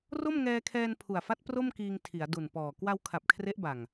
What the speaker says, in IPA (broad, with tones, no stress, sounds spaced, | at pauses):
r o˥˩ m ŋ ɛː˧ kʰ ɛː˧ n pʰ u˨˩ a̯ f a˦˥ t̚ p r o˥˩ m k iː˧ ŋ tʰ i˩˦ a̯ d u˨˩ n p ɔː˨˩ k w a˧ w kʰ a˨˩ p̚ kʰ r e˦˥ ʔ b a˨˩ ŋ